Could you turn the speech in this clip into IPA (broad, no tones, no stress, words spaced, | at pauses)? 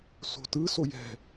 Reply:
so̤tɯ sojɛ̤